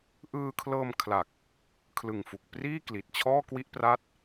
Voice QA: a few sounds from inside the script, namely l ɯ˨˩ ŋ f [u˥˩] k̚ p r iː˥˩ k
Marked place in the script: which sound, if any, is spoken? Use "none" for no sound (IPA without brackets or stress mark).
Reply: u˨˩